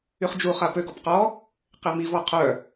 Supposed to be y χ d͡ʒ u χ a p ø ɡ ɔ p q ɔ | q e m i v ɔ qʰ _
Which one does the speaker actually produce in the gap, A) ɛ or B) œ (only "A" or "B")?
B